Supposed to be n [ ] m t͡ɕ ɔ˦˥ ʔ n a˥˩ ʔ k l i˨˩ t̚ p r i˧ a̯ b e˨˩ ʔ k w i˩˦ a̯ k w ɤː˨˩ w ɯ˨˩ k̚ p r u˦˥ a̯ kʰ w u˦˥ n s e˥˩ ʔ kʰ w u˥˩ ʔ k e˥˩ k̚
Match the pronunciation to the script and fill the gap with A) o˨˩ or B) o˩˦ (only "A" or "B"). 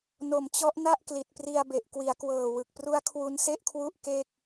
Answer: A